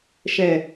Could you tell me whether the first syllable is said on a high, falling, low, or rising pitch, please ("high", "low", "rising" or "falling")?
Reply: low